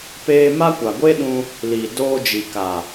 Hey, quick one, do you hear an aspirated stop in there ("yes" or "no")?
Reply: no